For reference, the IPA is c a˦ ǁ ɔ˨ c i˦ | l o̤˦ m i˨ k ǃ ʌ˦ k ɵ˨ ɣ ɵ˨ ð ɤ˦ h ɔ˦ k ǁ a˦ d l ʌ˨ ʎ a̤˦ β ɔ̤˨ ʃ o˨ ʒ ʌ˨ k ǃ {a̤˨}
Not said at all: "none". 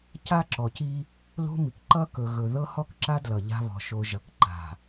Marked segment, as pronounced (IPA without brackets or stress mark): a̤˨